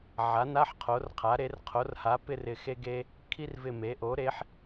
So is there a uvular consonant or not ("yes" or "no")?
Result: yes